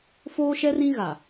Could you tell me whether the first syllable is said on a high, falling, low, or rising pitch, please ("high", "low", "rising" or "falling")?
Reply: high